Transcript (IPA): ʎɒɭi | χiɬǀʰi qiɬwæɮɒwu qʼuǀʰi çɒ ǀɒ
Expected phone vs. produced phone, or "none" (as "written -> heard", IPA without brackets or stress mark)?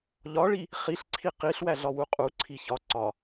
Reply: none